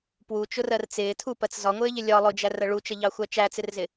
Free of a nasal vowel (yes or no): yes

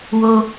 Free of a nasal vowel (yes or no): yes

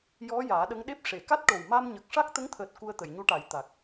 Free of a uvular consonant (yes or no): yes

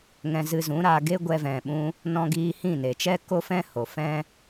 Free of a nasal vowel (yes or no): no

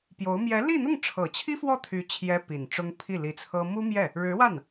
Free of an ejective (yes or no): yes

